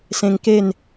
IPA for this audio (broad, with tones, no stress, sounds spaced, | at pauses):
s ẽ˧ ŋ k e˥˧ n